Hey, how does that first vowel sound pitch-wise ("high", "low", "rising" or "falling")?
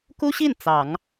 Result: high